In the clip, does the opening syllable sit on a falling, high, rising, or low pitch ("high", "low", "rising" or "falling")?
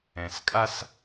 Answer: low